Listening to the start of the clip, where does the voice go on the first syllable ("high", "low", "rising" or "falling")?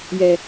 low